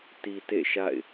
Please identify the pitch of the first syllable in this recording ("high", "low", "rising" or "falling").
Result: low